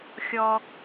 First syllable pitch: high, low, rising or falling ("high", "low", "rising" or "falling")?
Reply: high